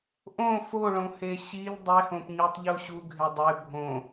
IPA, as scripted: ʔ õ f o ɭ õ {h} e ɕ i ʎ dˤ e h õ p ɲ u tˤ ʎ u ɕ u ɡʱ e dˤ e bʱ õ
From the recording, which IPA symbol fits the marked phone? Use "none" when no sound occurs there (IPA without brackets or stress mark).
h